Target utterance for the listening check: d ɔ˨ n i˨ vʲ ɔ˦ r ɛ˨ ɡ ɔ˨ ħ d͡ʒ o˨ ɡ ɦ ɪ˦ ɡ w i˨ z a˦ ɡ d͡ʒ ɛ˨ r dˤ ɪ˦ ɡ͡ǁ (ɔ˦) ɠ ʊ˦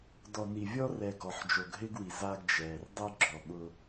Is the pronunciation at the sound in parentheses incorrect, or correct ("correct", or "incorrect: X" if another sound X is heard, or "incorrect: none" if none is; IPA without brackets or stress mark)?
incorrect: ɔ˨